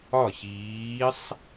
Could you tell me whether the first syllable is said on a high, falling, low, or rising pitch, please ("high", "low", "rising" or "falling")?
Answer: falling